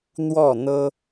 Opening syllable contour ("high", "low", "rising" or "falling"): falling